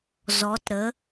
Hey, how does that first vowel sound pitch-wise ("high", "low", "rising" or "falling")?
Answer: rising